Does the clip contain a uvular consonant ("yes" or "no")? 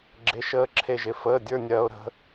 no